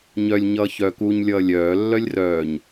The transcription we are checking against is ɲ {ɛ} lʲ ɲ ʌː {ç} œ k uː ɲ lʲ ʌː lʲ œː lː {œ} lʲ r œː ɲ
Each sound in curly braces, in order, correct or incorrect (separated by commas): incorrect, correct, correct